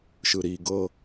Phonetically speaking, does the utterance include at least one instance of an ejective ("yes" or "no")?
no